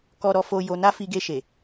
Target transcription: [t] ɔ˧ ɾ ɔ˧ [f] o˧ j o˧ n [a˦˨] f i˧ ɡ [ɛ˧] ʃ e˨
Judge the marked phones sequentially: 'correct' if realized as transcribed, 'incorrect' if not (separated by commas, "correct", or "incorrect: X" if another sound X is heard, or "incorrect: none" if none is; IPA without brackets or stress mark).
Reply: incorrect: k, correct, incorrect: a˦, incorrect: e˧